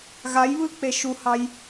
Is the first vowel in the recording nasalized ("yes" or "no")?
no